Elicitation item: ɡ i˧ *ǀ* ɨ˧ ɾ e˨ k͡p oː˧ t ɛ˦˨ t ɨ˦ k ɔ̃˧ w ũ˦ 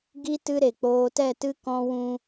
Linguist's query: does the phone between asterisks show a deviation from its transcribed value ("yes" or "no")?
yes